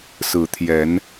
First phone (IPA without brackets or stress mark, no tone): s